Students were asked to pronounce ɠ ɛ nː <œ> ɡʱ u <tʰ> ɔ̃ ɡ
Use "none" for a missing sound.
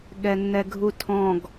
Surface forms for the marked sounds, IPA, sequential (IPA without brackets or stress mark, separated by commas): ɛ, tʰ